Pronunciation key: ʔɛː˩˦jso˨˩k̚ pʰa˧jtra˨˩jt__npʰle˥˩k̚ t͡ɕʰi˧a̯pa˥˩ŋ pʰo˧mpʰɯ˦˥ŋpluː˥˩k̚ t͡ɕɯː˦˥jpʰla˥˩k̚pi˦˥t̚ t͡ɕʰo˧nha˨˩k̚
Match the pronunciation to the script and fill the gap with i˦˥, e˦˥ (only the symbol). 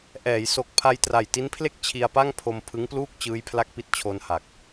i˦˥